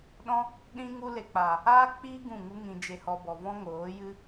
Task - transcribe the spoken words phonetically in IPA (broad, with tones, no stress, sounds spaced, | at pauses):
ɗ ɔ̃˦ | ɗ ĩ˦ ŋ u˦ l e˧ k͡p a˨ | aː˦ k͡p iː˦ ɡ ũ˦˨ ŋ u˦ ŋ ĩ˧ d͡ʒ e˧ h ɔ˧ b ɔ˨ v ɔ̃˦ ŋ oː˨˦ j ɨ˦